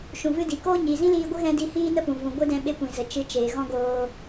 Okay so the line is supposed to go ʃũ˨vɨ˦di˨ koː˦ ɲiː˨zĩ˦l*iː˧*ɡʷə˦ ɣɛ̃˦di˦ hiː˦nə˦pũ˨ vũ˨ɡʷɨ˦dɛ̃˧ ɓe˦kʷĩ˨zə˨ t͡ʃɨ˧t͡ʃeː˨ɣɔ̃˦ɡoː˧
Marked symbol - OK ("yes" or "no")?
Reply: yes